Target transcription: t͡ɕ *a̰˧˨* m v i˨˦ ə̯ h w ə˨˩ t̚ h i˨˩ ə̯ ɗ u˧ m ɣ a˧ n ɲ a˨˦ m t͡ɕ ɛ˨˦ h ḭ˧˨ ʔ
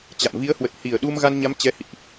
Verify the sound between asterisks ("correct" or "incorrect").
correct